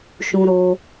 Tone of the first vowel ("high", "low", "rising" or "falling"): high